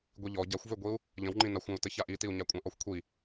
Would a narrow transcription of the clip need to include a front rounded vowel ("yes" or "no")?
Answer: yes